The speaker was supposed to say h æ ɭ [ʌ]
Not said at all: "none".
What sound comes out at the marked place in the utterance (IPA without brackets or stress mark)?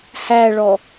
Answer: ɔ